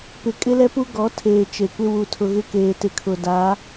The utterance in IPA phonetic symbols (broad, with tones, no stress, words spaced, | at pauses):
pɪ˨kʼɪ˦lɛ˦pu˦ ɡɔ˨˦tʰeː˨ t͡ʃe˨kʷɪ˦ wu˨ tʰʊ˨ɣɪ˦keː˨ tɪ˨kʰʊ˨ da˨˦